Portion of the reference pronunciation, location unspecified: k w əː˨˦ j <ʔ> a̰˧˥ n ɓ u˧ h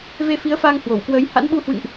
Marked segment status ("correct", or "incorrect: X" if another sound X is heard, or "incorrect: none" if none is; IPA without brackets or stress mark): incorrect: h